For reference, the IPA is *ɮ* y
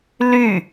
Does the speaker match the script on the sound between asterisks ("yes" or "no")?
no